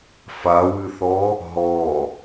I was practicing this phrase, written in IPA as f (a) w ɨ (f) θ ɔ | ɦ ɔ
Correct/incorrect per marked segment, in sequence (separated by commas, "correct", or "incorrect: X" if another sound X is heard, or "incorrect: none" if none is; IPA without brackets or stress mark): correct, incorrect: none